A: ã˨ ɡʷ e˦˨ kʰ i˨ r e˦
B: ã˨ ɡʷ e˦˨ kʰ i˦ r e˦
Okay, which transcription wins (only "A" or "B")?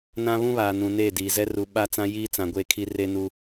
B